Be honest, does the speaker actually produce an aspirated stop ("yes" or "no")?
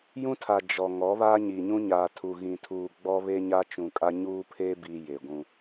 yes